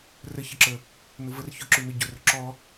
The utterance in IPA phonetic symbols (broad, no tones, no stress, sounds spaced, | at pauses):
r ə ç ə ǁ ə | n ʊ v ə r ç ʊ ǁ ʉ n o ɟ ʊ r ʊ ǁ ɔ